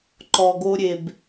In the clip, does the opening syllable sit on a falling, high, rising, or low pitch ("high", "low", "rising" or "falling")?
low